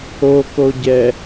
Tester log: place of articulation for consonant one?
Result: velar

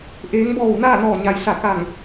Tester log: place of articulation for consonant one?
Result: glottal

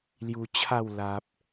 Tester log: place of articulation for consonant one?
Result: alveolar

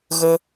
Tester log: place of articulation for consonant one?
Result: velar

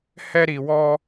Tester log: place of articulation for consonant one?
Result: glottal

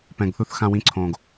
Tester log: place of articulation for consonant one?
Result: labial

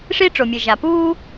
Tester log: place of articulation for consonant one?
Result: retroflex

